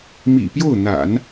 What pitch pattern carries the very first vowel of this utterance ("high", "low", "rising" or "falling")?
low